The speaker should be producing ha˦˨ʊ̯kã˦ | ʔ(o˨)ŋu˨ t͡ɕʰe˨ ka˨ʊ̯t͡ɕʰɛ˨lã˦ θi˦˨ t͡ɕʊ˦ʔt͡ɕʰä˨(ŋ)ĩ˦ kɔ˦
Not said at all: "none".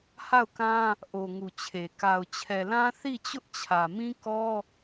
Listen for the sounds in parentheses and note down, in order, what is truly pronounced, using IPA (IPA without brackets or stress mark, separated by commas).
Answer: o˨, m